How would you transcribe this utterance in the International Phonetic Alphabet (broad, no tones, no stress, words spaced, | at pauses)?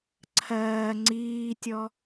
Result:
ǀʰɜː ŋ͡ǀiːtʲɔ